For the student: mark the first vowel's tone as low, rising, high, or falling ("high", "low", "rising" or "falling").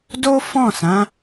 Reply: high